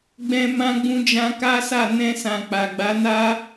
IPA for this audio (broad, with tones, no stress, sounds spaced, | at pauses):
ɡ͡b ɛ̃˧ m ã˧ ɡ͡b ũ˧ d͡ʒ ã˧ k a˦ s a˦˨ n ɛ̃˧ s ã˨ k͡p a˨ ɡ͡b a˨˦ n a˦